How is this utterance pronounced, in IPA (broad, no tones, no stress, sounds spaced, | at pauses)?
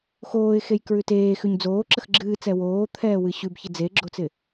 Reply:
x oː ɪ̯ x e j k ɹ ʉ t eː x ʉ ɲ d͡z oː ǁ ə x ɡ͡ǁ ɨː t͡s ɛ w oː t̪ʰ ɛː w ɨ ɕ ʉ b ç ɪ d͡z e ɡ͡ǁ o t͡s ɪ